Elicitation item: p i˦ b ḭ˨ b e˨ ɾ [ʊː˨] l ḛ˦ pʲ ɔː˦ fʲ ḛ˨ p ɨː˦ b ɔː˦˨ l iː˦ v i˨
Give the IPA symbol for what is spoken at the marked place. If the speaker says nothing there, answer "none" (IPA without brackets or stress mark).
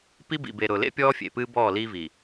ʊː˨